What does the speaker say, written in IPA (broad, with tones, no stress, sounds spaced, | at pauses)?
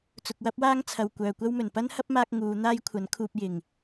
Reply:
t͡s ʊ˨ k̚ w ɐ˥ p̚ w aː˥ ŋ t͡sʰ ɐ˨ w kʷ œː˨ kʷ ɐ˥ w m ɵ˨˩ n p ɐ˥ n h ɐ˥ p̚ m aː˧ k̚ ŋ uː˨˧ n̪ aː˥ j kʷʰ ɐ˨˥ n kʰ uː˧ p̚ j ɪ˨ ŋ